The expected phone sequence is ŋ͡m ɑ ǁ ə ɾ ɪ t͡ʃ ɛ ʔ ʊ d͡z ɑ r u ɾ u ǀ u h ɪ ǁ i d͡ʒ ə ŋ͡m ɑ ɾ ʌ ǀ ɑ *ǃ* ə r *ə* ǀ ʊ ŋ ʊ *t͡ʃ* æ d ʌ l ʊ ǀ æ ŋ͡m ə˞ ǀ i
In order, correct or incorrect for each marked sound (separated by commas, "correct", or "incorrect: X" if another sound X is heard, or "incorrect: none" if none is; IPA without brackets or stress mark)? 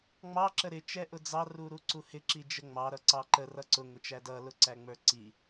correct, incorrect: ʌ, correct